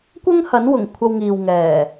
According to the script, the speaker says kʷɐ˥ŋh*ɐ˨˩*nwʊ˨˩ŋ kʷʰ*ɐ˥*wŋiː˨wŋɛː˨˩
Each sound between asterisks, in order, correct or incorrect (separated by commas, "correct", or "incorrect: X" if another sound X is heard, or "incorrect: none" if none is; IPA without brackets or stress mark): incorrect: ɐ˨˥, incorrect: ɐ˧